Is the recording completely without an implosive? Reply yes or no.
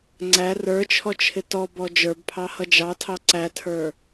yes